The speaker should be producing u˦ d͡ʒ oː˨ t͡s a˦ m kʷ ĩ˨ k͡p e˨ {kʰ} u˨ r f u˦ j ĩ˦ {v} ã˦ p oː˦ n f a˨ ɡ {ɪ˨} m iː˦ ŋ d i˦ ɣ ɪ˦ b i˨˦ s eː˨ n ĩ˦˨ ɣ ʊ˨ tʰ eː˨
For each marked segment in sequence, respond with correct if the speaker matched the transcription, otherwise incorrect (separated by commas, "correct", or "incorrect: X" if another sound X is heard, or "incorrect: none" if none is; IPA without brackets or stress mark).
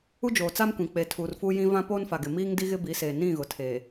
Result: incorrect: tʰ, correct, correct